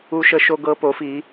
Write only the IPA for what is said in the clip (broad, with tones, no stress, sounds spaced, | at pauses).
u˦ ʃ ə˦ ʃ o˦ ɡ ɤ˦ p o˨˥ f i˨˥